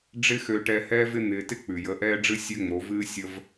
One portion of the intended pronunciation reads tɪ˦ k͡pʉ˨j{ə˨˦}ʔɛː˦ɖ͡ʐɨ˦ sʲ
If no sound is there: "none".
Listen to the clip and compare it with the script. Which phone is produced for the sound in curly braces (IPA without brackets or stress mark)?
ə˨˦